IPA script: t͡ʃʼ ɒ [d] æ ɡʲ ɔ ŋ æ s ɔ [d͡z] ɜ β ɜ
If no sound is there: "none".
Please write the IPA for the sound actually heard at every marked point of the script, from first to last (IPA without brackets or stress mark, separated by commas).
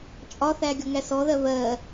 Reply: θ, ð